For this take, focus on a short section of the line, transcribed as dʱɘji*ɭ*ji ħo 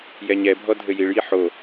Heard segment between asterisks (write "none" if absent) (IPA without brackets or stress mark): ɭ